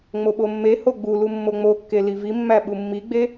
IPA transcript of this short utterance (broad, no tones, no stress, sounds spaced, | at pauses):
ŋ͡m o ɓ o mː e h o ɡ͡b u l u mː o ŋ͡m o kː e l i v i mː æ ɓ u mː i ɡ͡b e